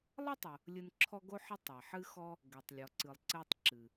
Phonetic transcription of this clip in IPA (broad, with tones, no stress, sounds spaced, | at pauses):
lˠ ɤ˥ tˤ o˨ | lʲ ɨ˦ n ǁʰ ɔ˦ ɡ o˥ ħ ɨ˦ tˤ ɛ˩ ħ ɨ˦ x ɔ˦ | ɡ ɛ˨ tˤ lʲ ɔ˨ ǀ ɨ˨ lˠ ǀ ɛ˦ tˤ ǁ ɨ˩